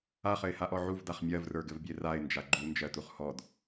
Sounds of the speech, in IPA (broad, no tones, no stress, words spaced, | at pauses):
aχɘɪ̯haʔɔ ʕuvdaχ mʲɜvrə˞ɡɘvbʲe raɪ̯nd͡ʒa ɡ͡ǃund͡ʒɜtuχ hɔd